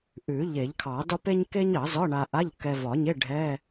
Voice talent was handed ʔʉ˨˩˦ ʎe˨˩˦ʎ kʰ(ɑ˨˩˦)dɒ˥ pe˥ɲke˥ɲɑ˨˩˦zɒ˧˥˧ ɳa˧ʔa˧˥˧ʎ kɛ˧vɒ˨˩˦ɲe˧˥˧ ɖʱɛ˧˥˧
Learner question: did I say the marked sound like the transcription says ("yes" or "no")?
yes